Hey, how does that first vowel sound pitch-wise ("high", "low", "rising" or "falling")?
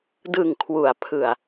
low